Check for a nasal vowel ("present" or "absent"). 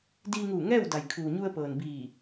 absent